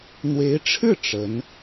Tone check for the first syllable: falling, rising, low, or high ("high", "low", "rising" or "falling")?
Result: rising